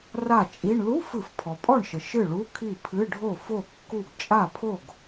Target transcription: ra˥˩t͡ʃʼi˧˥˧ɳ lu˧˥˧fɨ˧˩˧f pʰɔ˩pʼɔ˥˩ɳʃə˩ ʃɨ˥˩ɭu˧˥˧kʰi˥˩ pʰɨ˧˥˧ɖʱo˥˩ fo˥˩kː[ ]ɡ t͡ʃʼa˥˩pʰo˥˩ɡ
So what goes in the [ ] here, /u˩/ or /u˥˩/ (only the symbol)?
u˥˩